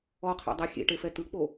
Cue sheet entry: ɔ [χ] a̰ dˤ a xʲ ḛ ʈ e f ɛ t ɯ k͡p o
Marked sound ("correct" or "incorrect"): incorrect